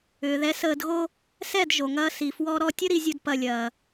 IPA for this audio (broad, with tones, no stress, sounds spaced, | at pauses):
ʏː˨ ð ɛ˨˦ s əː˧ d ɣ o˦ | s ɛ˦˨ d ʒ o˨ ŋ ɐː˧ s i˨ f w ɔ˧ ɾ ɔ˧ tʲ ə˦ ɾ i˦ zʲ u˦ d p ɐ˦ lʲ ɐː˧